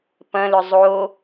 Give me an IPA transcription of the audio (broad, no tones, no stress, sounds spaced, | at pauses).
p ɐ̃ l ʏ zˤ o